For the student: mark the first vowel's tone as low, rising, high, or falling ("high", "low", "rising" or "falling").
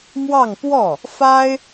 falling